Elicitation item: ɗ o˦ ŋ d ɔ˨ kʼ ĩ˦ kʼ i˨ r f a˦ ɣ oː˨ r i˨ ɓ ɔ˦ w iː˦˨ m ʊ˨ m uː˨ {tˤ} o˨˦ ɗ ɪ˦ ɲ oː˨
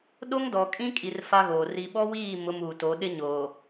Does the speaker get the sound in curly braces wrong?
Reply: yes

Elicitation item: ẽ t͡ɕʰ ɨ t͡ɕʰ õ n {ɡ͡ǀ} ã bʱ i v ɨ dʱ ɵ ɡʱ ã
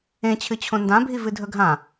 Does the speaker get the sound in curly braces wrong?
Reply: yes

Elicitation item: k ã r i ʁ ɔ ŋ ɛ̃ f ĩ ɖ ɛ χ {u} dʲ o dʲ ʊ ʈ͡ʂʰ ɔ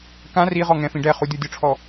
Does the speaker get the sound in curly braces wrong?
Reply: no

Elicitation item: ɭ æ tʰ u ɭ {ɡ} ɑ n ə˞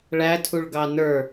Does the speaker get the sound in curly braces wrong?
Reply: no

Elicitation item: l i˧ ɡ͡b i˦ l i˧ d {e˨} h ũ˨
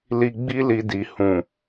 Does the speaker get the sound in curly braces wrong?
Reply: yes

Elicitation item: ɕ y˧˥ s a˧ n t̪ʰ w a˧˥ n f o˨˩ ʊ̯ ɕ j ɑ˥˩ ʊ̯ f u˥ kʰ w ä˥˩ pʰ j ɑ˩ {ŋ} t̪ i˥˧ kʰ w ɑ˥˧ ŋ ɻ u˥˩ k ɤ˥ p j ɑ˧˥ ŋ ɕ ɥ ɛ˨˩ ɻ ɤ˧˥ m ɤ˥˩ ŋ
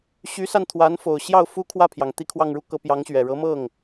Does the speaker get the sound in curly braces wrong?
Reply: no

